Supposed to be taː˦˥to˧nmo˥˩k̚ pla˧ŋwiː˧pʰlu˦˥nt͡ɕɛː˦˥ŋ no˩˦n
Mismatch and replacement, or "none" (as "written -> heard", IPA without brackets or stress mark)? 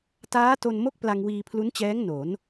none